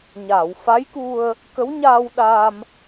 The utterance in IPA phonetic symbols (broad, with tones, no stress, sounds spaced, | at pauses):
ɲ aː˨˩˨ w f a˧˥ j k u˧ ə̯ | k ə˧˥ w ɲ aː˧ w ɗ aː˧ m